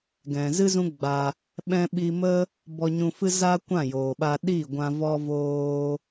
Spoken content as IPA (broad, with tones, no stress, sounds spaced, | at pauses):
ɡ ɛ̃˨ z ɨ˦ z ũ˦ ɡ͡b a˧ | ɓ ɛ̃˧ ɓ i˧ m ə˦ | b ɔ˧ ɲ ũ˧ f ɨ˦ z a˦ kʷ ã˦˨ j oː˨ ɓ a˧ ɗ i˦˨ ɡʷ ã˧ v ɔ˧ v oː˧